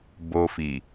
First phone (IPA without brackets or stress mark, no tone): b